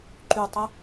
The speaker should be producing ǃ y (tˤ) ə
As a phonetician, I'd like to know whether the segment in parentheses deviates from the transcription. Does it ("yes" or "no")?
no